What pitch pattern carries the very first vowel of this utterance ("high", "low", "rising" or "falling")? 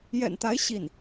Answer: low